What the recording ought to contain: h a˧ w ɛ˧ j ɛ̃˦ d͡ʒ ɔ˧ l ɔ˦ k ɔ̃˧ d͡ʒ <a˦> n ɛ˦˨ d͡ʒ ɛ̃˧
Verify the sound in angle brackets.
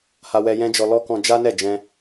correct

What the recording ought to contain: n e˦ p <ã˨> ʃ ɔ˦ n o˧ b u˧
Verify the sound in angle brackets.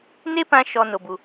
incorrect: ã˦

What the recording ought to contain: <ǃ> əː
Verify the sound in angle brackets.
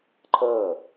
incorrect: ǃʰ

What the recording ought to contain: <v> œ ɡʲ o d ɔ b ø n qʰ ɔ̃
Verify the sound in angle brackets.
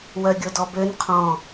incorrect: w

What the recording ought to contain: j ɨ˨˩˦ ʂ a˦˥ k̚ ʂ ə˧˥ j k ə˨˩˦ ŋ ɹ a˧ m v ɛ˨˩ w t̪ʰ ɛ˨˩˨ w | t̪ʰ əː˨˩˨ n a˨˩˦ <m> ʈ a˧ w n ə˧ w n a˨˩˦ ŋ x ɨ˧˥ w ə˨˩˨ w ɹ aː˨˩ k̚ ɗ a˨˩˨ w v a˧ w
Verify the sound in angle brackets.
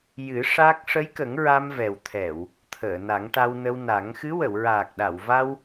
incorrect: ŋ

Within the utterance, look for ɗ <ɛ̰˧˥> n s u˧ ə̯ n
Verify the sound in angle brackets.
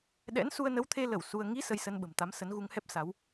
correct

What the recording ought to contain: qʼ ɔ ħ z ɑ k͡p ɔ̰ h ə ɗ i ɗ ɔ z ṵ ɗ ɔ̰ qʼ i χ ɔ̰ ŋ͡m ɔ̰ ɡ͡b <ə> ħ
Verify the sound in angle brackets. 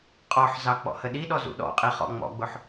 incorrect: ʊ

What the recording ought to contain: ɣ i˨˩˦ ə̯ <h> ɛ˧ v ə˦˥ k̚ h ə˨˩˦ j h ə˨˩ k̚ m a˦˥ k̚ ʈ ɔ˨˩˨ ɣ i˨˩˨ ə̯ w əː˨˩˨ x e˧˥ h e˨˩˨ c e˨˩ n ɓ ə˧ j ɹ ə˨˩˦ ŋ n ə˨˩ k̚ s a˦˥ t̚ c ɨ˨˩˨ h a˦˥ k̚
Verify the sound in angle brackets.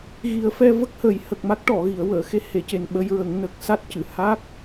incorrect: f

